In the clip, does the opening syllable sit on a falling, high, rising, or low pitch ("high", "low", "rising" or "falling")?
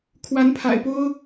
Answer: rising